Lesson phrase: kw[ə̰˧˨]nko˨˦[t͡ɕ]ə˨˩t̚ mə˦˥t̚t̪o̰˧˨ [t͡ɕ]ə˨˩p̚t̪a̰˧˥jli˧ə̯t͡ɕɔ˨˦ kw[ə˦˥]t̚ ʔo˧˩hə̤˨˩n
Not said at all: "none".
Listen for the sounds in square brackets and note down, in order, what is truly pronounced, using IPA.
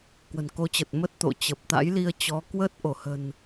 ə̤˨˩, t͡ɕ, t͡ɕ, əː˦˥

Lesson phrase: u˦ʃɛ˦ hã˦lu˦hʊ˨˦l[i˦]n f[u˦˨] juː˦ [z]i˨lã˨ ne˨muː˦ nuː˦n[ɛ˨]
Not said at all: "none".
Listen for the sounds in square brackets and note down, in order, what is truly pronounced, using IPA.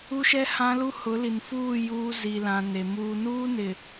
i˨, uː˦˨, z, ɪ˨

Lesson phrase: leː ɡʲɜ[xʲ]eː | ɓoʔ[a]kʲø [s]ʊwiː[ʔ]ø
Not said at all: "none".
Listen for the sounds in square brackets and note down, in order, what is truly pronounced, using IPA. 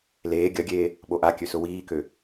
ɡʲ, a, s, k

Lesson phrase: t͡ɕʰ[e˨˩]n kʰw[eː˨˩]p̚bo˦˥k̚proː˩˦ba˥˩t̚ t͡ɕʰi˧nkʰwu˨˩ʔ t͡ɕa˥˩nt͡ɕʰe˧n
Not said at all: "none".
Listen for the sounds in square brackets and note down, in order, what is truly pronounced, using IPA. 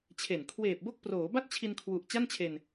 e˨˩, eː˨˩

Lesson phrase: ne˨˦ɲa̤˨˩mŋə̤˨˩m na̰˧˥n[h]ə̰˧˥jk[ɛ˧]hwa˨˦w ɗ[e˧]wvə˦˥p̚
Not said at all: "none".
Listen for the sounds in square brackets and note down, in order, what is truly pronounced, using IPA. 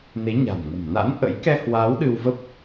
ʔ, ɛ˧, ɨ˧

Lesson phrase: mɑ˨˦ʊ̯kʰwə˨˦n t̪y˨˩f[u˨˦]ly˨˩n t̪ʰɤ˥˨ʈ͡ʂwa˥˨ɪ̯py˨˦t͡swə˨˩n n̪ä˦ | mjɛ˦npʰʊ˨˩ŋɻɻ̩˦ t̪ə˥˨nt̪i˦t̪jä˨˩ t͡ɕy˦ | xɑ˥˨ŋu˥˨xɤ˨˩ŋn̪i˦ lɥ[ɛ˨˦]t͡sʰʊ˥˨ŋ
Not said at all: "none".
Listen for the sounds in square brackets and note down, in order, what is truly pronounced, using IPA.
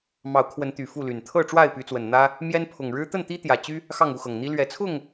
u˥˨, ɛ˨˦

